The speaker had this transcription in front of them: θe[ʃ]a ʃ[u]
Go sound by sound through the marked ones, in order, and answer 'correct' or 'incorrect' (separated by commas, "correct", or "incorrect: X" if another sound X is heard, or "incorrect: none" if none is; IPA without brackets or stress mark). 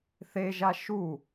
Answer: incorrect: ʒ, correct